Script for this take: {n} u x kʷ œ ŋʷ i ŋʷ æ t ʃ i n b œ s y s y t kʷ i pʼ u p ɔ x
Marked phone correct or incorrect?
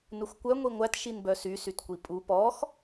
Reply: correct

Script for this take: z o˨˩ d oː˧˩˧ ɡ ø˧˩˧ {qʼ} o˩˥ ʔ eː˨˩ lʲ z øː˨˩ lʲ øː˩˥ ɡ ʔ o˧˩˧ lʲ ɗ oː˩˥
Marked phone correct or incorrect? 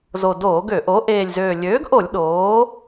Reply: incorrect: ʔ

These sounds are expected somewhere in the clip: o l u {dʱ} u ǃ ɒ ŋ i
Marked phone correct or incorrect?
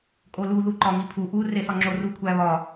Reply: incorrect: ð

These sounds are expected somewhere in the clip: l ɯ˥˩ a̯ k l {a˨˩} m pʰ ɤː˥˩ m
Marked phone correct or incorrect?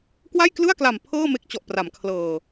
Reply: correct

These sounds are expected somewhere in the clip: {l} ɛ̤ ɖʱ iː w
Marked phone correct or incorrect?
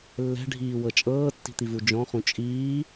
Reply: incorrect: lː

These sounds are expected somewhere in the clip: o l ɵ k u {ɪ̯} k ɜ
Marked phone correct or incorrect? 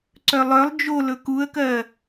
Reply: incorrect: ə̯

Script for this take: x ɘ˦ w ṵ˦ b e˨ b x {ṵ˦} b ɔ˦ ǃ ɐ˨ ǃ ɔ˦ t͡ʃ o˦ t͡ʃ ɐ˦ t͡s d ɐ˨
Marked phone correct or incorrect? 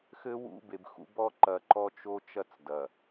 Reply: correct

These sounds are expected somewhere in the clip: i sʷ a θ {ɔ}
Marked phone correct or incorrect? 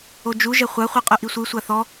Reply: correct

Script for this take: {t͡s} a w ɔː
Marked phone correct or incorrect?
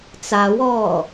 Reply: correct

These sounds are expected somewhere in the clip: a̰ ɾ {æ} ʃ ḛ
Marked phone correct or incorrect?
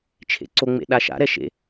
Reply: incorrect: ɛ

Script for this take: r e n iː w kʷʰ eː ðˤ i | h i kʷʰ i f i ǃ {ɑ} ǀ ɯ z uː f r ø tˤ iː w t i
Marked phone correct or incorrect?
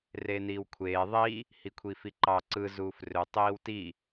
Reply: correct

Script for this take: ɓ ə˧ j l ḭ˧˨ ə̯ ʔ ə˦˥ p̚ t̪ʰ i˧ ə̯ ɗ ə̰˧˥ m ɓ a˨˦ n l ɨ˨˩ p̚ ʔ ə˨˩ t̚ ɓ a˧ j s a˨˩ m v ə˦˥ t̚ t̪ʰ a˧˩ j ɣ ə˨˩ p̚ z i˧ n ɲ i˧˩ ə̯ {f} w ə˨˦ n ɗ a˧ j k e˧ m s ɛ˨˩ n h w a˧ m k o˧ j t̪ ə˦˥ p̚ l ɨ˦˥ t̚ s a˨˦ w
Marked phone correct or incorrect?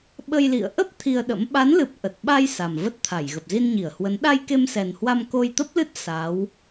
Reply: incorrect: h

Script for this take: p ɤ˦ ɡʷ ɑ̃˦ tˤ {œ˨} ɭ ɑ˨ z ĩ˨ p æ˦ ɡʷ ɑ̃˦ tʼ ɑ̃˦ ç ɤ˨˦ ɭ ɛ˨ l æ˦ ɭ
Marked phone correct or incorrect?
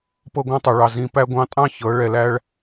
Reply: correct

